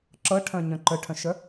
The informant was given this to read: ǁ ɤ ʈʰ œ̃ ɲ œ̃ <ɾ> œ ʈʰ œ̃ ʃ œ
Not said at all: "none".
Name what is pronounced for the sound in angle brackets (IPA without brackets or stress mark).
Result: ǃ